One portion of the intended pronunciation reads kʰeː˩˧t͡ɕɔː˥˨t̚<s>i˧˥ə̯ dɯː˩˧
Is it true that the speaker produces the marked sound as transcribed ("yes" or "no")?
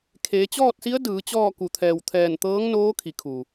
yes